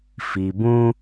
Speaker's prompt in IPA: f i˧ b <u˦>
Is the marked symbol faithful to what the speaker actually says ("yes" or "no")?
no